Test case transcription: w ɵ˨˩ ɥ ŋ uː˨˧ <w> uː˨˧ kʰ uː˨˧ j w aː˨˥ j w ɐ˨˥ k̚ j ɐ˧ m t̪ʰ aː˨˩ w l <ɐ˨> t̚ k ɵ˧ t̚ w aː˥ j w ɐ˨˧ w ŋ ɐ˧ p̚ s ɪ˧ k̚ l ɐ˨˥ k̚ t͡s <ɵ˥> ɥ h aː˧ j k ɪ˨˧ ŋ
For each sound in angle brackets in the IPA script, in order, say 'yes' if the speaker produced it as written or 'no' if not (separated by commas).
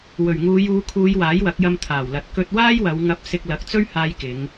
no, yes, yes